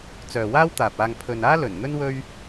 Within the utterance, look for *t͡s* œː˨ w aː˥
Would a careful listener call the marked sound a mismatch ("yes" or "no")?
no